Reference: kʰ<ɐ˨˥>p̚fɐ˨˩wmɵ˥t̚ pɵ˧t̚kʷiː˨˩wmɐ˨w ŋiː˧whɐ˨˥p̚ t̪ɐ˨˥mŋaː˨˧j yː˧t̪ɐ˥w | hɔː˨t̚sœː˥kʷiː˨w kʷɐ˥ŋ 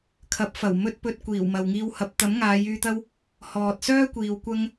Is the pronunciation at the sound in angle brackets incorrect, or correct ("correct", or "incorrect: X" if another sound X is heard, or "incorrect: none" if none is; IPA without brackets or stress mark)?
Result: correct